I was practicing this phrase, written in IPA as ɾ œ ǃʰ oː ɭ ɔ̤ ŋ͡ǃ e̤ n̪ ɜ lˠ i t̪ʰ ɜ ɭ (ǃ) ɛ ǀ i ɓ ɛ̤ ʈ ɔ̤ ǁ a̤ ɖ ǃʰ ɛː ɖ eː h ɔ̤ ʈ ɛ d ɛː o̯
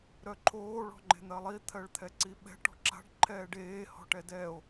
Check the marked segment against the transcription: incorrect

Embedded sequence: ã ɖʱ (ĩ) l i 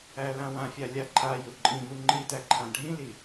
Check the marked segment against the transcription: correct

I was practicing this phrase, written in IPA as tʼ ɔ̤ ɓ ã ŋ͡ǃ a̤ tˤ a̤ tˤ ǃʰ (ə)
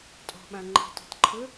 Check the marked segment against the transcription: incorrect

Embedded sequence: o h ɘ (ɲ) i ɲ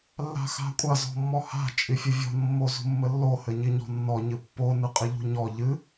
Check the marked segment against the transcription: correct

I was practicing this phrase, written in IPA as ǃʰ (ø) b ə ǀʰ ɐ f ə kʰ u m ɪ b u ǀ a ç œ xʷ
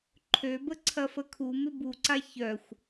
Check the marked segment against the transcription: correct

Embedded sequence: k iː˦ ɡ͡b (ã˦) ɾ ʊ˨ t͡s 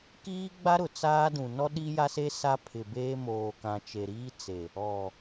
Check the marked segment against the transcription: incorrect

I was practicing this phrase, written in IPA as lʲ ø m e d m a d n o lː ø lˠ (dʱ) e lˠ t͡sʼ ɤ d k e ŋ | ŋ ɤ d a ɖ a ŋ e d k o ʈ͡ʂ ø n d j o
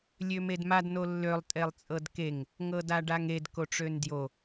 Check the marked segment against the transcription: incorrect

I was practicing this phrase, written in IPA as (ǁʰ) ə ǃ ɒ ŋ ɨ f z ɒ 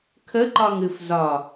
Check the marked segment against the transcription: incorrect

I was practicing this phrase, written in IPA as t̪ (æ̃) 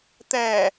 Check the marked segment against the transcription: incorrect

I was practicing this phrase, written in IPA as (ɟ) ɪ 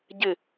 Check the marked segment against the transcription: correct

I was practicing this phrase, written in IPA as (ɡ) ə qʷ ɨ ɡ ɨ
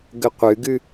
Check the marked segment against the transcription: correct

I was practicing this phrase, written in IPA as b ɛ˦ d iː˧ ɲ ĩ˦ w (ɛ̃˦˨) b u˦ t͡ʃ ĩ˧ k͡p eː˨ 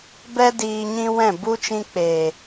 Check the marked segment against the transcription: correct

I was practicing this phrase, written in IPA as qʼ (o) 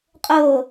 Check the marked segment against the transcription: correct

